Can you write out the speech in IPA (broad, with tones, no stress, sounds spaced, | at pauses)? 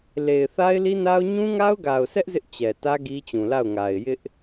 l e˨ ɪ̯ θ a˦ ɪ̯ l i˦ n a˦ ʊ̯ ɲ ũ˦ ŋ a˦ ʊ̯ ɡ a˨ ʊ̯ s ɛ˦ ʔ z ɪ˦ ʔ t͡ɕ ɛ˨ t ä˦ ɡ i˦ t͡ɕ ũ˨ l a˦˨ ʊ̯ ŋ a˨ ɪ̯ j ɪ˦ ʔ